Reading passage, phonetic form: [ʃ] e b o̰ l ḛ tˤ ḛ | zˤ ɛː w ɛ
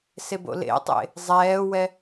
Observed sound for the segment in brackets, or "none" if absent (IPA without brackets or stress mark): s